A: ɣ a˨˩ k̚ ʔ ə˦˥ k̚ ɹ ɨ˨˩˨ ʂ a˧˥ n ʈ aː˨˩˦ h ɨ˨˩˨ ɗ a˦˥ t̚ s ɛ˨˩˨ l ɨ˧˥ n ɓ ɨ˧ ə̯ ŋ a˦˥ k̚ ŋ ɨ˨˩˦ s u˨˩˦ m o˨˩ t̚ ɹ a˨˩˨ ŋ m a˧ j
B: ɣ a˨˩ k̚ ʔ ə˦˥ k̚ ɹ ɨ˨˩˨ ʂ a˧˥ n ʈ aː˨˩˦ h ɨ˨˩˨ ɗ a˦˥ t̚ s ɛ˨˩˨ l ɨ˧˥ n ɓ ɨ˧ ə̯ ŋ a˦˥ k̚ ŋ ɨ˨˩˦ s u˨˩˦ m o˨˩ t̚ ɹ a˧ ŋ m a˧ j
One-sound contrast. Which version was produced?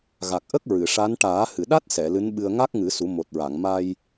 A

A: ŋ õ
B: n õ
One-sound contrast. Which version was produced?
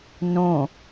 B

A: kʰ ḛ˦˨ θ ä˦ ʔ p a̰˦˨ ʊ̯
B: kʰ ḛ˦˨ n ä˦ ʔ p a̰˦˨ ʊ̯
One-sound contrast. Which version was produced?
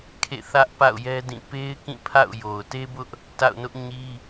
A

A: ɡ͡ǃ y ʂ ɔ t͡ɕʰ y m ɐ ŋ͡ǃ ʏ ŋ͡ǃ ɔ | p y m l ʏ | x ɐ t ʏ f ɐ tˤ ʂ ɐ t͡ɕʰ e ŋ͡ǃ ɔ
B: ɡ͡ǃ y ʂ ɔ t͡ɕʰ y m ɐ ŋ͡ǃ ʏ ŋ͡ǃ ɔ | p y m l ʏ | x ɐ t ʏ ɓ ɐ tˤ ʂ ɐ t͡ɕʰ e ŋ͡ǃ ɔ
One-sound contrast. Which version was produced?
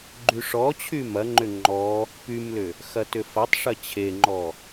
A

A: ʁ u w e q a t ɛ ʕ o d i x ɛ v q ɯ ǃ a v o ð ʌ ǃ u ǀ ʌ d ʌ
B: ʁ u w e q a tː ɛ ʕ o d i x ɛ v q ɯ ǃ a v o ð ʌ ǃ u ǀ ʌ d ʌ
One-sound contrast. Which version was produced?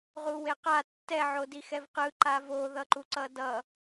B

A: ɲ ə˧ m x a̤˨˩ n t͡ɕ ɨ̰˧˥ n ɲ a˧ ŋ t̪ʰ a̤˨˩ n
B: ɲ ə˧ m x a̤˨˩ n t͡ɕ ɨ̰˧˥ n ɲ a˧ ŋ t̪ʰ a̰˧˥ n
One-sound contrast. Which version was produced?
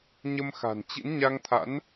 B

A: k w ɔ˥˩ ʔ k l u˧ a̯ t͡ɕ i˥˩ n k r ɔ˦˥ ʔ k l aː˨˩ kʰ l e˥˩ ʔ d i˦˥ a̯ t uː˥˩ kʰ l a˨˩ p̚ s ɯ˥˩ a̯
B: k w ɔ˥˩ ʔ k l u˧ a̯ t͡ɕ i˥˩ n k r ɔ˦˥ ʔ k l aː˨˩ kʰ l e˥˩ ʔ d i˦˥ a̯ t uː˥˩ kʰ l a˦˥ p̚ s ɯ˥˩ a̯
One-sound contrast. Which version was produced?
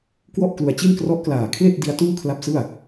B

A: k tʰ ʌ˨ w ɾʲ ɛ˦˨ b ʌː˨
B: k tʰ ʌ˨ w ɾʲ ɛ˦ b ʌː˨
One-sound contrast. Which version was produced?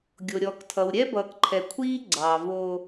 B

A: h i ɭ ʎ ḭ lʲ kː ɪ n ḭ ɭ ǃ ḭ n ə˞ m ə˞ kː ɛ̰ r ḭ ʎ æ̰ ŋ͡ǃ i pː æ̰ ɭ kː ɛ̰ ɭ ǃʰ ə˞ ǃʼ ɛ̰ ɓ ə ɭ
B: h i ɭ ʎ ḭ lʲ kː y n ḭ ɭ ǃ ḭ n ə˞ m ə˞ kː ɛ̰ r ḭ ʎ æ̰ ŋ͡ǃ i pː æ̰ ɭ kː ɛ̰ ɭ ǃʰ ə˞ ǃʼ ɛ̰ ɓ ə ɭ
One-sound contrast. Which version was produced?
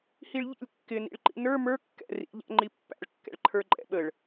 A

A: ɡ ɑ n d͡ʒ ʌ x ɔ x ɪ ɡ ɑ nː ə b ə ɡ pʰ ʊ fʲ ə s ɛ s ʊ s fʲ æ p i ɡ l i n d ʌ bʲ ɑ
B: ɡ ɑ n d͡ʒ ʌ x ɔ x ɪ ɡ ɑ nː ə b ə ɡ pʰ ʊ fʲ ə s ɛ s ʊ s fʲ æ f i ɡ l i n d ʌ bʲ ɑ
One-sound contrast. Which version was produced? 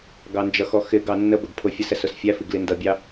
B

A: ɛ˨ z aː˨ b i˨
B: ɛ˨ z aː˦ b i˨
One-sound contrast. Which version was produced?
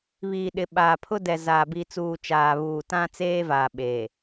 A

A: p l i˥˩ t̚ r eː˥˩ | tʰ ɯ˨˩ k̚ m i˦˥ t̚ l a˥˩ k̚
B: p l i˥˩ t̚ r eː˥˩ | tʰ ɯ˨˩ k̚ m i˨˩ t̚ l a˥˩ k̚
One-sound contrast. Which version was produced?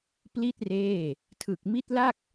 A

